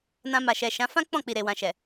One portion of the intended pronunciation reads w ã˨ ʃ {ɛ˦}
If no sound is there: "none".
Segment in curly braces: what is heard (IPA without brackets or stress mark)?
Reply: ɛ˨